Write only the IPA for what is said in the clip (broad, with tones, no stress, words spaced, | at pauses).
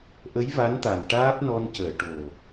ʔə˧˥jva˧˥nt̪a˨˩n ʈaː˦˥p̚nɔ˧n cəː˨˩˨ ʈo˨˩